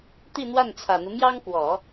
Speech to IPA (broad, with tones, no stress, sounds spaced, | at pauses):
t̪ i˥˧ n̪ w a˥˩ n t͡sʰ ä˨˩ n̪ u˦ m j ɑ˥ ŋ k w ɔ˨˩˦